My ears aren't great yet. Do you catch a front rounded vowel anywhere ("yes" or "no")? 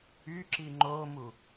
yes